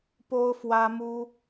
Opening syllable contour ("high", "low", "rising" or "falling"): high